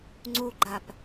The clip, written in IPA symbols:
ŋ͡ǀ u ɡ͡ǃ a p

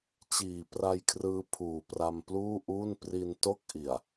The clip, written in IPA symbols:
t͡ɕ iː˨˩ p r a˧ j kʰ r ɯː˦˥ pʰ uː˨˩ p r a˧ m p l uː˥˩ ʔ uː˥˩ n p r i˧ n t o˥˩ k̚ ʔ i˨˩ a̯

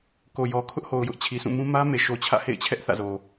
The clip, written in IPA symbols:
k o˨ j ɔ˨ kʰ ʊ˦ ʔ h o˨ ʊ̯ j ʊ˦ ʔ t͡ɕʰ i˨ s ũ˦˨ m ũ˦ m ä˦ m e˨ ʃ o˨ t͡ɕʰ ä̰˦˨ h ḛ˦˨ ɪ̯ t͡ɕʰ ɛ˦ ʔ θ ä̰˦˨ z o˨

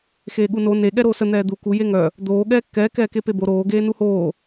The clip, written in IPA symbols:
x eː ɠ u n o n e ɠ ɛ ɾ oː s ə n̪ ɛː d̪ u k u j e ŋ œ | d̪ oː ɠ ɛː kː ɛː k ɛː k e p e b o ɾ oː ɡ eː n u h oː

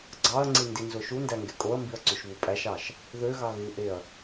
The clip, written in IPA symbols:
ɡ͡ǀ ɑ ɐ̯ ŋ͡ǀ i n d i n z o ʃ u n d æ ŋ ɡ e kʼ o ɐ̯ m b i ɐ̯ ǀ y ʃ β u pʼ æ ʃ ɑ ʃ | ð ø ɣ ɑ ɣ ɯ ʔ e ɐ̯

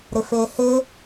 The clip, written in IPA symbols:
ɾ ɪ f e h ɪ

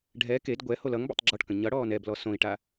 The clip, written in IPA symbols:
ɖʱ ɛ k e d ɡʷ ɛ h o l ʌ ŋ b a̰ tˤ ɡ͡ǁ ɔ ʈ k ə̃ ɲ ʌ ɽ ɔː n ɛ b l ɔ s õ i̯ ʈ a

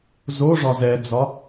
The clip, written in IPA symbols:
z o ʐ ɒ z ɛ d͡z ɒ

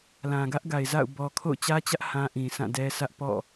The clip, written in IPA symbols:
l ã˨ ɡ ä˦ ʔ ɡ a˨ ɪ̯ z a̰˦˨ ʊ̯ b ɔ˨ kʰ o̰˦˨ ʊ̯ t͡ɕ ä˦ t͡ɕ ä˦ ʔ h ã˦ ʔ ĩ˨ s ã˦˨ d ɛ˦ s ä˦ ʔ p ɔ̰˦˨

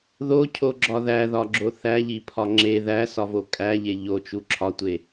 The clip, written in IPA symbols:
ð o cʰ o ɡ͡ǁ ɒ ð æ ð ɒ ɡ͡ǁ o θ æ ʎ i pʰ ɒ ŋ͡ǁ e ð æ s ɒ v o kʼ æ ʎ e ʎ o t͡ʃ u ǁʰ ɒ tʷ e

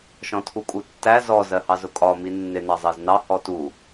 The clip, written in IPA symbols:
ʃ ɔ̃ tʰ u kʼ u tː æ z ɔ z ɜ h ɑ z ʊ kʼ ɒ m i nː ɪ n ɑ zˤ ɜ z n ɑ h ɔ t u

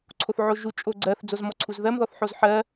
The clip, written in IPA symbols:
ǀʰ o θ ʕ o ʒ u t͡ʃʼ o ɡ͡ǀ ɜ θ d͡z o z m ɔ ǀʰ u z ð ɜ m ð ɔ θ ħ o z ħ ɜ

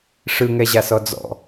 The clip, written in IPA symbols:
ʂ ɯ ŋ ɛ ʑ a s ɔ d͡z ɔ̰

